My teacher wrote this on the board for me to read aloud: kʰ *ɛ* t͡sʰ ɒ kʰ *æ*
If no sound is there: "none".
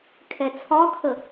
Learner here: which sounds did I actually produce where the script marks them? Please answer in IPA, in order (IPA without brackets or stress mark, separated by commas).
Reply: ɛ, ə